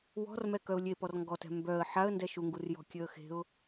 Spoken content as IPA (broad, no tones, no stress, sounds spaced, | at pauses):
w ɔ̤ r m ɛ k œ ʊ̯ lʲ e p ɔ r ŋ ɡ ɔ t ɛ̤ m b œ ə̯ ħ a ə̯ n d ɛ ʃ u ŋ ɡ u r j ɔ̤ kʲ ø ə̯ x e̤ ʊ̯